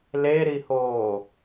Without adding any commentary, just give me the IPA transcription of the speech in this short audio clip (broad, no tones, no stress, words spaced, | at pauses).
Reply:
leɾihoː